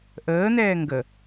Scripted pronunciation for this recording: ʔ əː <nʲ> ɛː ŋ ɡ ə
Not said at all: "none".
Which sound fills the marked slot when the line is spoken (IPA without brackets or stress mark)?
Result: n̪